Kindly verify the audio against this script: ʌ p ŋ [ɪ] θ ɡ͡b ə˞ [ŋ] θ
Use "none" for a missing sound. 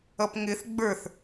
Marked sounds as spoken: ɪ, none

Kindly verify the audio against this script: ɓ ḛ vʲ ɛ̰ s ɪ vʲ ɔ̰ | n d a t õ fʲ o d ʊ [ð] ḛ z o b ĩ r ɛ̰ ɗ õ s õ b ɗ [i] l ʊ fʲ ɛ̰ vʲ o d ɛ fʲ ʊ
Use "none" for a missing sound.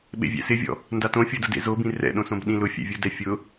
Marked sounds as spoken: d, ĩ

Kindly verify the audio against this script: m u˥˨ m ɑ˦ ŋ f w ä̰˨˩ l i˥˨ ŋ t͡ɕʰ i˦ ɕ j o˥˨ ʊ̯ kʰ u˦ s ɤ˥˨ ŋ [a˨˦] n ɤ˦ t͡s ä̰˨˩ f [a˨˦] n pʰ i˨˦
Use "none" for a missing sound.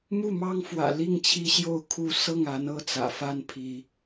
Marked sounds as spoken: a˨˦, a˦

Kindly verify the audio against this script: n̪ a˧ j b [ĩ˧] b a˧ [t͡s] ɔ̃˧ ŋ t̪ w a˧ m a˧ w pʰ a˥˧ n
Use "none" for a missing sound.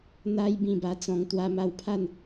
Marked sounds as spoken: ĩ˥˧, t͡s

